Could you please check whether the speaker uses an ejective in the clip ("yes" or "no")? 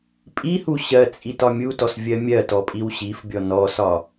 yes